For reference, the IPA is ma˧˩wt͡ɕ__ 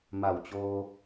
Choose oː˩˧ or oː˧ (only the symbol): oː˧